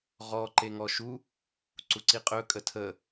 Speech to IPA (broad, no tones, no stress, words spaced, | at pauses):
ʁɔ ǃeŋɔʃu | ǀuǀiqʼɵ kʼətʰə